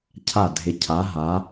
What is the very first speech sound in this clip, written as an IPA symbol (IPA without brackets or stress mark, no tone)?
cʰ